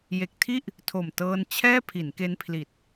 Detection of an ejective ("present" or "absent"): absent